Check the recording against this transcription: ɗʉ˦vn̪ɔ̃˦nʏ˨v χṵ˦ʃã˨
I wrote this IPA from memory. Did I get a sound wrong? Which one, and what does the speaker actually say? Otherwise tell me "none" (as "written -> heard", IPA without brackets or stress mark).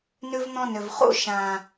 ɗ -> n